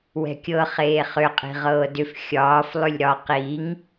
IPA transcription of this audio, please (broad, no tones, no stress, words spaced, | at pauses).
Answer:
wɛ̤kʲɤ χeːχʏ qʼi̤ʁɤːdʏf xʲɒːf lˠʏlʲɾɒ qiŋ